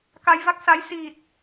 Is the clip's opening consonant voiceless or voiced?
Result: voiceless